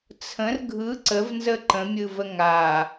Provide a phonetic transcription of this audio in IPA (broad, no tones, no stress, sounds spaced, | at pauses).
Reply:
t͡sʰ ə̃ r ɡʱ ɯ ǀ ə v n z ə ǃ ə̃ mʲ ɯ v ə ŋ a